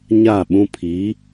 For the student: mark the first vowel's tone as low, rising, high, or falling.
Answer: falling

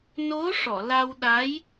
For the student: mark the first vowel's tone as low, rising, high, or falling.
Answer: rising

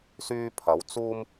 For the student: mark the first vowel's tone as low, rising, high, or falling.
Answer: high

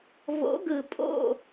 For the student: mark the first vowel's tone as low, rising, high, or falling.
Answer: rising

